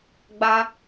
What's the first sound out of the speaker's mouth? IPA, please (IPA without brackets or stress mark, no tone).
ɡ͡b